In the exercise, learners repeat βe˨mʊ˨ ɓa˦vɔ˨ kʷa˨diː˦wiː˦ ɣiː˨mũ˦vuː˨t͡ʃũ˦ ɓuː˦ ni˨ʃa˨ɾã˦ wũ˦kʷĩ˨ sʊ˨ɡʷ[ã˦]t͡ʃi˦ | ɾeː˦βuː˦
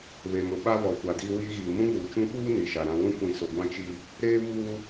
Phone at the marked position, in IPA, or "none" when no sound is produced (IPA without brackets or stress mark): ã˦